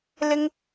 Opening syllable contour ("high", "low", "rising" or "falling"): high